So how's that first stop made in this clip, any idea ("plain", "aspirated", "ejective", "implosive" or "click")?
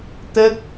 plain